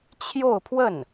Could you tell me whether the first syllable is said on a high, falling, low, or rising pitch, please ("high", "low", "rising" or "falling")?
falling